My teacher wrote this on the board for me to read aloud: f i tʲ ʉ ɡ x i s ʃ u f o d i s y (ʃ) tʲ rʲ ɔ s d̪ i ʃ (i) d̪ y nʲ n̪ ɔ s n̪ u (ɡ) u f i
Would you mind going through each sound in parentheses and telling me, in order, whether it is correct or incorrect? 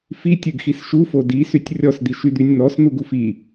incorrect: none, incorrect: y, correct

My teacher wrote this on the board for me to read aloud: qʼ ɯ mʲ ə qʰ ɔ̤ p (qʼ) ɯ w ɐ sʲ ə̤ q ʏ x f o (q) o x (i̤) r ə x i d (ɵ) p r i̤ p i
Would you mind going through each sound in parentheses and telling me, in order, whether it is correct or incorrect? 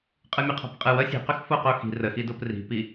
correct, correct, correct, incorrect: o

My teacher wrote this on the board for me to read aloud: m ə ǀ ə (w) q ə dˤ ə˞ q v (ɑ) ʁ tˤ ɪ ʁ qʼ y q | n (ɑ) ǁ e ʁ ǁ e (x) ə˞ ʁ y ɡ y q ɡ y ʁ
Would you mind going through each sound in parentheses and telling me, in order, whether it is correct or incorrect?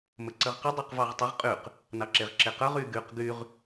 incorrect: ʁ, correct, correct, incorrect: q

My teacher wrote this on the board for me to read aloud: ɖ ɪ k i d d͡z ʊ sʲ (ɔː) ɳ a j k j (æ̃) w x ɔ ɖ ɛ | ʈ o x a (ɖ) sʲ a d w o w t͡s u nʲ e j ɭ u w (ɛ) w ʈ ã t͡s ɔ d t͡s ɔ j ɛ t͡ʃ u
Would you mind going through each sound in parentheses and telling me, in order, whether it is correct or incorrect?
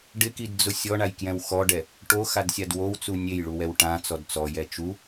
incorrect: ɔ, incorrect: ɛ̃, incorrect: d, correct

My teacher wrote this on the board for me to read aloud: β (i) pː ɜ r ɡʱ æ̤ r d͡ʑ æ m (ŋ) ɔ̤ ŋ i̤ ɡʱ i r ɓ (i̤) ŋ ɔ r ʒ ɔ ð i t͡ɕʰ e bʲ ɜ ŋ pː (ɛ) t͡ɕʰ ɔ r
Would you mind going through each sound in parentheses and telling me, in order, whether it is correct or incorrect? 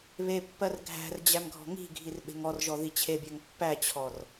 incorrect: e, incorrect: ɡʱ, incorrect: e̤, incorrect: æ

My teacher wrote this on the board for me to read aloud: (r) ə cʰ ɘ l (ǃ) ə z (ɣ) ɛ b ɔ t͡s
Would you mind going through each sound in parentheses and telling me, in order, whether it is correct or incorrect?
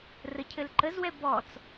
correct, correct, incorrect: w

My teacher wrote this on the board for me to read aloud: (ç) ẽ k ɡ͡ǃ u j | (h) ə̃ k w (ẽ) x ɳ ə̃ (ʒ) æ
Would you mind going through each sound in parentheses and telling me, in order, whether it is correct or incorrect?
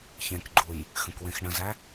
correct, incorrect: x, correct, incorrect: z

